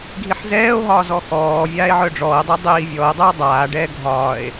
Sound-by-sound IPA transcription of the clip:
ɡʱiħzɛːo̯ɦɒːzɔ xɔː vʲaːe̯ʕœɖ͡ʐɔːe̯dˤi dˤiːvʲɔːe̯dˤœo̯ dˤaː ɖɛːɡʱɒːe̯

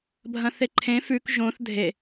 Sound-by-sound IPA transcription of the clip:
bʱɐ̃θeǃʰẽ fʉk ʒõθ dʱe

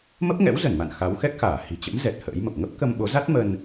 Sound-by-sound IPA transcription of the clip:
mə˦˥p̚ŋɛ̰˧˥wzə˧˩nma̰˧˨n xa˨˦wxɛ˦˥k̚xaː˧˩ hi̤˨˩t͡ɕə̰˧˥mzɛ˨˩t̚ hə̰ː˧˥jmə˨˩p̚ ŋə˦˥p̚kə˧mɓo˨˦za˦˥t̚ mə˧n

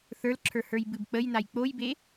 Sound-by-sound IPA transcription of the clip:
θə˞lǁʰə˞ hə˞jbɨbk͡pəjnaj k͡pojbe

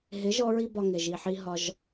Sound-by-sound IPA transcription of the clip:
ɦɪ˨˦ ʒɔ˦ɹi˦bɒ˧ŋɪ˨ ʒi˨ ħi˧ɦɒ˧ʒ

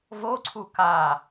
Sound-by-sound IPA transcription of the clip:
voǀʰu ka

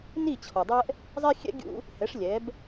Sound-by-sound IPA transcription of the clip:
ni˥˩ t͡ɕʰɔ˩dˤɛ˥ʔ | zˤɛ˥xʲɛ̰˥ ɡʲṵ˥ | hɛ˩˥ʂ lʲɛ˩˥b

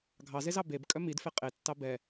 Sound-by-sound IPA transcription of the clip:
ɡʱɑzezɑ beb kʼœmidfe qʼetːɑ bɛ

